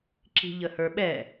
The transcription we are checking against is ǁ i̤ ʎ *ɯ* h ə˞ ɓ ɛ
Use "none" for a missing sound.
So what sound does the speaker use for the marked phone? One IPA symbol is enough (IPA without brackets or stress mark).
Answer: ə